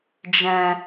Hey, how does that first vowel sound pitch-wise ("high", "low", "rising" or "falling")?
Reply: low